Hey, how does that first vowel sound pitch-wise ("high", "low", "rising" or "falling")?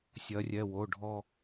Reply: rising